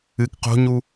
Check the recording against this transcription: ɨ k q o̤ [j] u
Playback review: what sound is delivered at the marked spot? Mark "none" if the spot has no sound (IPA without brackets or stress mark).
ɲ